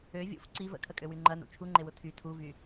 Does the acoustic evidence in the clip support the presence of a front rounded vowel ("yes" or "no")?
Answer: yes